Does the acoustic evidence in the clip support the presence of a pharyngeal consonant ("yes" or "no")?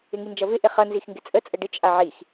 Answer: yes